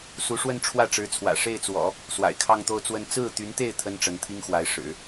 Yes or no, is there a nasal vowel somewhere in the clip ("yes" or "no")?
no